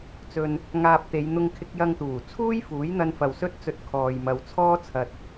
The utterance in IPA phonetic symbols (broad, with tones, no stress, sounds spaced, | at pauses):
t͡s ɵ˨ n | ŋ aː˧ p̚ t̪ e˨˧ j n̪ ʊ˧ ŋ kʰ ɪ˧ k̚ j ɐ˧ ŋ t̪ uː˨˩ t͡sʰ uː˥ j f uː˨˥ j n̪ ɐ˧ n f ɐ˨ w s ɵ˥ t̚ t͡s ɵ˧ t̚ kʰ ɔː˨ j m ɐ˨˧ w t͡sʰ ɔː˥ t͡sʰ ɐ˧ t̚